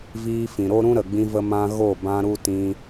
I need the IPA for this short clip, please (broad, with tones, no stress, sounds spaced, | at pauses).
v iː˧ f ĩ˨ ɾ o˦ ɾ ũ˦ ɾ ə˨ ɡ͡b ĩ˧ v ə˧ m ã˧ ɣ o˦˨ b ã˧ ɾ u˧ t ĩ˧